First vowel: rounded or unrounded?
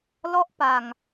rounded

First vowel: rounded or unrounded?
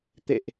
unrounded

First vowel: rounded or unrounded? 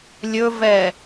rounded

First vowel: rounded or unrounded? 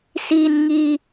unrounded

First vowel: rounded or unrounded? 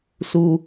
rounded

